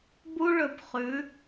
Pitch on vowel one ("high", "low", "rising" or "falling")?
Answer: high